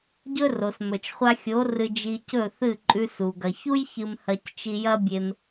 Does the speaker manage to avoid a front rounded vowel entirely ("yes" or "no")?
yes